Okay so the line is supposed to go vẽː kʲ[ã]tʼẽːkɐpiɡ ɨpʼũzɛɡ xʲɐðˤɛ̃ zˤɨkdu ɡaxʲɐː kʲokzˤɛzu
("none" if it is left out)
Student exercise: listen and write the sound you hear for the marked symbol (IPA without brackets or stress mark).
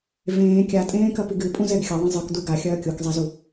a